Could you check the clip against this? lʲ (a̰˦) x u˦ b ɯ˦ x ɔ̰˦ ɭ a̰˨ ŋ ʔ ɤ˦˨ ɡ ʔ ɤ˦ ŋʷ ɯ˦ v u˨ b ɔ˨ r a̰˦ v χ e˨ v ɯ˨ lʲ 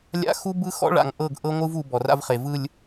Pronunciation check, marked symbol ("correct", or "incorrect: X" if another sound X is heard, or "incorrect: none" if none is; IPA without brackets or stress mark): correct